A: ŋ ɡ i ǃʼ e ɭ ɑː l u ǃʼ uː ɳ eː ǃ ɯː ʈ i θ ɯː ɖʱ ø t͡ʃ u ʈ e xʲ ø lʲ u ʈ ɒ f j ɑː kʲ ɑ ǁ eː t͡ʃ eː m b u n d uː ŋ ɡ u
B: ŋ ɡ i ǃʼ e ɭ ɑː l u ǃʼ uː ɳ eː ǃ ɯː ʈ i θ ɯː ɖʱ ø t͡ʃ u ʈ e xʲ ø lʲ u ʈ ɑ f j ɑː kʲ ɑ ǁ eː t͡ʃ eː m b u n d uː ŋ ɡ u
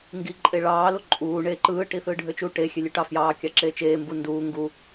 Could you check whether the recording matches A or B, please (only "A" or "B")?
B